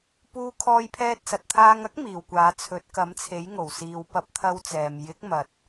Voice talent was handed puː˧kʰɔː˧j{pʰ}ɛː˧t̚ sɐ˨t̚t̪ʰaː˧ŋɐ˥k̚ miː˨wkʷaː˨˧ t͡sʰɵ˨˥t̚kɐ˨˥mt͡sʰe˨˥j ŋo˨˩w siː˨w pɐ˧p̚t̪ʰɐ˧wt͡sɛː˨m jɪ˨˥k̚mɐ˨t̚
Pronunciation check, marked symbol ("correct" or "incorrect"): correct